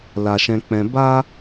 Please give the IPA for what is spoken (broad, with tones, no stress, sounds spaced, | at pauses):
l a˨ ʃ ɛ̃˧ k͡p ɛ̃˧ b a˦